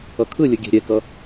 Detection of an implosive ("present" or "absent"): absent